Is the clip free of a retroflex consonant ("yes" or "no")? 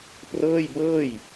yes